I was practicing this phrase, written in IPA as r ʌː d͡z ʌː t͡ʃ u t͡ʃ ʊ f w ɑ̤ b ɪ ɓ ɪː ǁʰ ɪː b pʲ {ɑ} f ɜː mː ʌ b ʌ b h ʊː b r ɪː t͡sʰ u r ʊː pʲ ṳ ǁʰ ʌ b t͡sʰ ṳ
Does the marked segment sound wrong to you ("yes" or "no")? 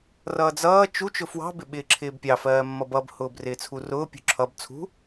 no